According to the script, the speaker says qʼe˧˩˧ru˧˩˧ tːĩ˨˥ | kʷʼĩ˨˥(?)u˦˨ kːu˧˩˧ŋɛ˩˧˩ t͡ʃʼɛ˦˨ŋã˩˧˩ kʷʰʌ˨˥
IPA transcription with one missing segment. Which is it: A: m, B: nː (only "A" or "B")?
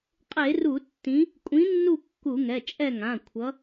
B